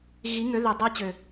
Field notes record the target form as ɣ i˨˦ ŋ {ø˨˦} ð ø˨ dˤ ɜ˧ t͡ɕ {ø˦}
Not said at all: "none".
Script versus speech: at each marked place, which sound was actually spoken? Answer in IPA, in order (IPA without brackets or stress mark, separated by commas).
ø˨˦, ø˨